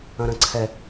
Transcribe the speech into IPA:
ɐ̃ ɾ ɐ̃ ǀʰ ɛ

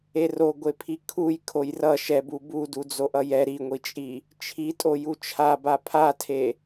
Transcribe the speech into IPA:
e r o ɡʷ e pʰ i kʰ u j kʰ o j r ʌ ʃ ɛ b u b u d u d͡z o ʔ ʌ j ɛ ɾ i ŋʷ i t͡ʃʼ i | t͡ʃʰ i tʼ o j u t͡ʃʰ a b a pʰ a tʰ e

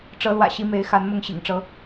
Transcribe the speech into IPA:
ʈ͡ʂ ɤ˨˦ l w ä̰˨˩ ɕ i˨˦ m e˨˦ ɪ̯ x a˨˦ n m ʊ˥˨ ŋ ɕ ḭ˨˩ ŋ ʈ͡ʂ ɤ˨˦

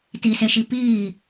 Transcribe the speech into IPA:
t i s e ʃ i p iː

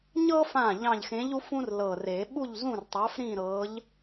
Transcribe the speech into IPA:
ɲ ɤ˦ f ã˧˩ ʎ ɑ̃˧˩ ʎ x ẽ˨˥ ʎ u˨˥ f ũ˦ r l ɤ˧˩ r e˨˩˦ ɓ u˥˨ ʎ z ũ˥˨ r tˤ ɑ˨˥ f ɾ ĩ˥˨ ɾ ɤ˨˥ ʎ

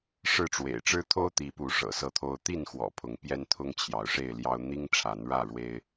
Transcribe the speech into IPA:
ʂ ɻ̩˥˨ ʈ͡ʂ w ḛ˨˩ ɪ̯ ʈ͡ʂ ɻ̩˦ t̪ʰ o˦ ʊ̯ t̪ i˨˦ p u˨˦ ʂ ɤ̰˨˩ s ɤ˥˨ t̪ʰ o˦ ʊ̯ t̪ i˥˨ n x w ɔ̰˨˩ pʰ ʊ˨˦ ŋ p j ɛ˦ n t̪ʰ ʊ˦ ŋ t͡ɕʰ j ɑ˨˦ ʊ̯ ʂ e˥˨ ɪ̯ l j ɑ˦ ʊ̯ n̪ i˦ ŋ ʈ͡ʂʰ a˨˦ n ɻ ä˥˨ ɻ w e˦ ɪ̯

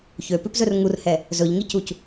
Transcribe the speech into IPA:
ç ø p ʉ p z ɵ r ŋ u r h ɛ | z ɵ ʎ ŋ i c u c

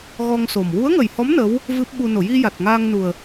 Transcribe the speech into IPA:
ɣ ɔ˧ ŋ s o˨˩ m w u˧˥ ə̯ ŋ ə˨˩ j h ɔ˧˥ m n ə˧˥ w | v ɨ˦˥ p̚ ɓ u˧ n o˨˩˨ j i˧ j a˨˩ t̚ ŋ aː˧ ŋ n u˨˩ ə̯

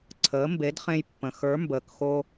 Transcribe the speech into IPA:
ǀʰ əː˩˥ m b e˩˥ d χ ẽ˧ j pː ə̃˩ x ə˞˩˥ m b əː˩ k x o˧

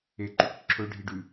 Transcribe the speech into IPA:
e ǃ ʉ k ǁʰ ɵ ɖʱ i ɖ ʉ

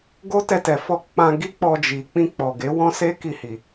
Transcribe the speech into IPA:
ɡ o˦ t ɛ˧ t ɛ˨ f ɔ˧ k͡p ã˧ ɡ i˦ k͡p ɔ˧ d͡ʒ i˨ k͡p ĩ˧ k͡p ɔ˨ ɡ e˨˦ w ɔ̃˦ s e˦ k i˧ h i˨

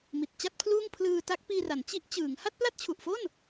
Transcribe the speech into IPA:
m i˨˩ t̚ t͡ɕ a˥˩ t̚ pʰ l uː˥˩ ŋ pʰ l ɯː˧ t a˦˥ k̚ p iː˧ r a˩˦ n t͡ɕ i˦˥ ʔ t͡ɕ ɯː˩˦ ŋ h a˥˩ t̚ p l a˥˩ t̚ t͡ɕʰ u˨˩ ʔ f o˥˩ n

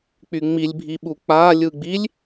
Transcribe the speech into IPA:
k͡p y ŋ͡m i lʲ bʱ i ɓ u k͡p a lʲ ɯ ɡ͡b i lʲ

